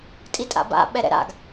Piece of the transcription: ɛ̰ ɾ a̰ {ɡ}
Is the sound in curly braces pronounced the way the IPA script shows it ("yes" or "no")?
yes